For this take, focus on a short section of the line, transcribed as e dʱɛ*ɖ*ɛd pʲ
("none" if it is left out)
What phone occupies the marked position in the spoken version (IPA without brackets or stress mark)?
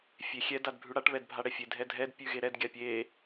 dʱ